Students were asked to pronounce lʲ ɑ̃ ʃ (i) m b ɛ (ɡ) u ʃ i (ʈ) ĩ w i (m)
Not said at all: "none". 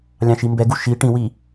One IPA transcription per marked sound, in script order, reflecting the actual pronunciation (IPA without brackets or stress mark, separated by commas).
i, ɡ, ʈ, none